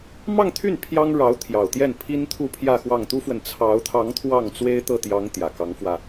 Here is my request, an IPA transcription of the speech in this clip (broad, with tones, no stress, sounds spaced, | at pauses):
m ɑ˥˧ ŋ t̪ʰ y˥˩ n pʰ j ɑ˥ ŋ ɻ ɑ˧˥ ʊ̯ t̪ʰ j ɑ˨˩ ʊ̯ t̪ j ɛ˥˩ n pʰ i˥ n t̪ʰ u˥˧ pʰ j ä˥˧ x w ɑ˥˩ ŋ t̪ u˥ f w ə˨ n t͡sʰ ɑ˧˥ ʊ̯ t̪ʰ ɑ˧˥ ŋ t̪ʰ w ɑ˥˩ ŋ t͡s w e˥ ɪ̯ t̪ ɤ˥˩ t̪ j ɑ˧˥ ŋ t̪ j ä˨˩ k ɑ˧˥ ŋ f w ä˧